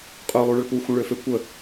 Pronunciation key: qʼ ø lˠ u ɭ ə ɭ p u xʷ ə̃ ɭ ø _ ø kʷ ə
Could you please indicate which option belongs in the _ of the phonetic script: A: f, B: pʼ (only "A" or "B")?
A